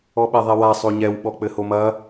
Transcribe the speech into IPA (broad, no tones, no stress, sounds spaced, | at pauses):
ɔ ɓ ɛ ðˤ ɛ w a sˤ o ɲ ɛ w ɓ ɔ k͡p ɘ h o m ɐ